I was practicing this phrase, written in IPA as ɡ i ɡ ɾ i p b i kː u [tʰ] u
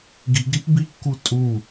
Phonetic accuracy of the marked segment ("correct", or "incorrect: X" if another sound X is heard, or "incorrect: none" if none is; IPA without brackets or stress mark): incorrect: tʼ